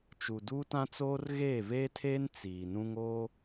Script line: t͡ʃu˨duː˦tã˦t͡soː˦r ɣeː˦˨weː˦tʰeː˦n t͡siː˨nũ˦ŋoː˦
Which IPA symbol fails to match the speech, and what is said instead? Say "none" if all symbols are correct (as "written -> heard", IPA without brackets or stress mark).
w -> v